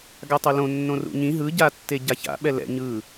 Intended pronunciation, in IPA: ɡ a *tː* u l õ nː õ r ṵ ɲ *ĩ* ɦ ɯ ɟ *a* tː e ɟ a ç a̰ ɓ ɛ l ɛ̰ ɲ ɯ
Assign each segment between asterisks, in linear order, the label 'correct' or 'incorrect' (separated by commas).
incorrect, correct, correct